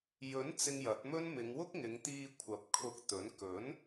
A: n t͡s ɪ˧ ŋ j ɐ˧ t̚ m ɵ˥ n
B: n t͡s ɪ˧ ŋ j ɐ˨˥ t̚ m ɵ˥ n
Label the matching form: B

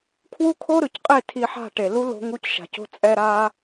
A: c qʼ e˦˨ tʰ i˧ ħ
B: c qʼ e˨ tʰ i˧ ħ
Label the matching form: A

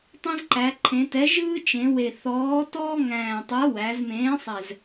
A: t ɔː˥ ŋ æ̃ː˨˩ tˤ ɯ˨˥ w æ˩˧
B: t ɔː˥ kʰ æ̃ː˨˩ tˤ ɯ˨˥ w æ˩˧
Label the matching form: A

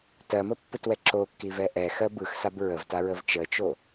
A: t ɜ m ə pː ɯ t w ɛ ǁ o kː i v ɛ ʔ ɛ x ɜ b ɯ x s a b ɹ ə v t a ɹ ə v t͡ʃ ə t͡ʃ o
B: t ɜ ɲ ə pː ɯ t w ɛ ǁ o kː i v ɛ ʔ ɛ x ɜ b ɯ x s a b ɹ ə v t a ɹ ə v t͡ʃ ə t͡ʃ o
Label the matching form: A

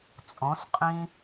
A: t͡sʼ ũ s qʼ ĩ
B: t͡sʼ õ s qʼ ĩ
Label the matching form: B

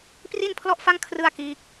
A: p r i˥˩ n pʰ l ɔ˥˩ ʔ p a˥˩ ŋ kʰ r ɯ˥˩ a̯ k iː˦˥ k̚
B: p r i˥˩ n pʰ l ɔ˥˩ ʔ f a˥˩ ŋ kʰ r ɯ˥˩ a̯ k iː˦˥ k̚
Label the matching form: B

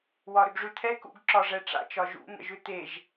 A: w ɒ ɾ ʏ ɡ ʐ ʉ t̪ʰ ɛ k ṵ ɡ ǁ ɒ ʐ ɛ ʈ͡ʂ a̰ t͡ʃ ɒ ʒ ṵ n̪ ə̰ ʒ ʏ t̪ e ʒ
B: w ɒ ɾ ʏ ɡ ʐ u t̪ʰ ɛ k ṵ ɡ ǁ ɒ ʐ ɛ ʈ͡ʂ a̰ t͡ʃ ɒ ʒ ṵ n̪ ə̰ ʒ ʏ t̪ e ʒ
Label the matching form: A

